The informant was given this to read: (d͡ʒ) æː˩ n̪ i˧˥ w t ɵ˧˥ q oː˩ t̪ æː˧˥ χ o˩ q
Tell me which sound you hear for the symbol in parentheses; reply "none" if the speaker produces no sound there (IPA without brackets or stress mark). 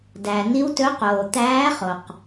d